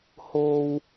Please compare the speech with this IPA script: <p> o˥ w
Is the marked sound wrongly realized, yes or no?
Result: yes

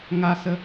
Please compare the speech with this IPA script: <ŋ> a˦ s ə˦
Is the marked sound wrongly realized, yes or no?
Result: no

